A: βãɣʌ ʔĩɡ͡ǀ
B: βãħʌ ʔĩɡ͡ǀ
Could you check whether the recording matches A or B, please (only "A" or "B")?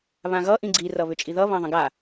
A